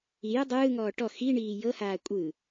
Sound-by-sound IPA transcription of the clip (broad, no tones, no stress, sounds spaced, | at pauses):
i j ɯ dˤ ɯː ŋ ɔː ʈ ɔ x i ɳ iː j ɤ h aː kʷʼ ɯ